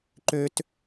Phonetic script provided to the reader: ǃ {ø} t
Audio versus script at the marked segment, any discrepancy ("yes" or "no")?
no